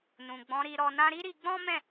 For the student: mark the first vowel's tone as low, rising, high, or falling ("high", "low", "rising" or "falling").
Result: low